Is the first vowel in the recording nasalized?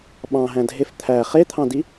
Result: yes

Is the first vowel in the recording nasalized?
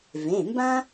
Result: yes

